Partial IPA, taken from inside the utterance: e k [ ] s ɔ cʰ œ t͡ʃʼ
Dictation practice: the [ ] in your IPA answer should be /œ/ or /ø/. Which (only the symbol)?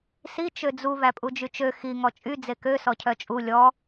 ø